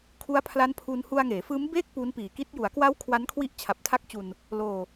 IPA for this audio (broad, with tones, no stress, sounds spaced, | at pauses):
kʰ u˦˥ a̯ pʰ l a˦˥ n pʰ u˧ n h u˧ a̯ ŋ eː˩˦ f ɯː˦˥ m b eː˥˩ k̚ p u˦˥ n p iː˨˩ k i˦˥ t̚ j u˩˦ a̯ k w a˦˥ w kʰ w a˦˥ n kʰ w i˦˥ ʔ t͡ɕʰ a˨˩ p̚ tʰ a˦˥ k̚ t͡ɕ u˧ n | l oː˧